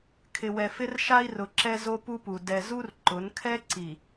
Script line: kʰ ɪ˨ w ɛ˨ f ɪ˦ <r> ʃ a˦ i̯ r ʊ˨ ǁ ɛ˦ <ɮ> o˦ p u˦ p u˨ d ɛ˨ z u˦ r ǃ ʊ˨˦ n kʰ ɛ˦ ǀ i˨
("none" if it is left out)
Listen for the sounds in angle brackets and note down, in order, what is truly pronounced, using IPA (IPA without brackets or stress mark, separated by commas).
r, z